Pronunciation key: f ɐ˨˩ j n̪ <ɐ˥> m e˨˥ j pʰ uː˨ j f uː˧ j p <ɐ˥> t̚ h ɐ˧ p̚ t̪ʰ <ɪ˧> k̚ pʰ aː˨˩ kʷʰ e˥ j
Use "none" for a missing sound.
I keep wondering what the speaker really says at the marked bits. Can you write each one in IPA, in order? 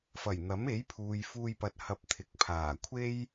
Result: ɐ˨˥, ɐ˨, ɪ˨

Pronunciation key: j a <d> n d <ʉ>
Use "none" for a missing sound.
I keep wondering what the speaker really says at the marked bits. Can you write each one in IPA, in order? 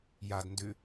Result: d, ʉ

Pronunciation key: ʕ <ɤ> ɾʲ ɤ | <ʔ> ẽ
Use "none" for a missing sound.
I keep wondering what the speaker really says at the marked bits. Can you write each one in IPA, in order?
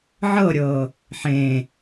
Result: ɤ, ħ

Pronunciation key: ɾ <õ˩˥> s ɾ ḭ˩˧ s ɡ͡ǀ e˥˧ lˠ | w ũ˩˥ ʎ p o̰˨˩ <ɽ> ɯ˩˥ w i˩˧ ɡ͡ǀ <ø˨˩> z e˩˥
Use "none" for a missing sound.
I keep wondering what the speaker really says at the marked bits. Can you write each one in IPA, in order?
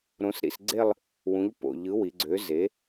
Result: õ˩˥, ʎ, ø˩˥

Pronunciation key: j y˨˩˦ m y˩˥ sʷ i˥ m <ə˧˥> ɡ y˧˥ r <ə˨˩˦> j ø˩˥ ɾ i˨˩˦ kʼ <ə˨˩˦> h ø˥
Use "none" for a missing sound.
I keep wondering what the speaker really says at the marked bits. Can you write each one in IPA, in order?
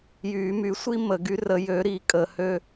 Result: ə˨˩˦, ə˨˩˦, ə˨˩˦

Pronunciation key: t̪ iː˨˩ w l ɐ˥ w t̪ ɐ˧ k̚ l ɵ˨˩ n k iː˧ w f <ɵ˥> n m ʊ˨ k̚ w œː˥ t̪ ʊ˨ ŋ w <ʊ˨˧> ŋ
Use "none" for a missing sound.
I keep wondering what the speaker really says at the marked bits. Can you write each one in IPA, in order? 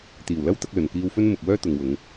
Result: ɵ˥, ʊ˨˧

